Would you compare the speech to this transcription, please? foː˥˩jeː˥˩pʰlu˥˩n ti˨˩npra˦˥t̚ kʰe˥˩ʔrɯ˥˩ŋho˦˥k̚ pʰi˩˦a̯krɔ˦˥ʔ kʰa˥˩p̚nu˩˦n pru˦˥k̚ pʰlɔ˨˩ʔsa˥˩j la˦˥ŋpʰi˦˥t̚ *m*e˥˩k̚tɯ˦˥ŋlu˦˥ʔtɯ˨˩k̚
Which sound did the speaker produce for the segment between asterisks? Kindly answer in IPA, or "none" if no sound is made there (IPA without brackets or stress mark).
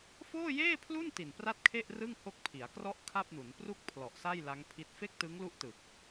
f